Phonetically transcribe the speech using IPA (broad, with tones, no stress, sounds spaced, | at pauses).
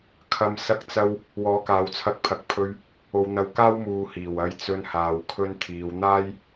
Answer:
kʰ ɐ˧ m s ɐ˧ k̚ t͡s ɐ˧ w | w ɔː˨˧ k aː˨˧ w t͡sʰ ɐ˧ k̚ pʰ ɐ˨ k̚ pʰ ɵ˧ ɥ | o˧ w n̪ ɐ˧ w k aː˥ w m uː˧ h iː˨˩ w ɐ˧ j t͡s ɵ˧ n h aː˨ w kʰ ɵ˧ n t̪ʰ iː˨˧ w n̪ aː˥ j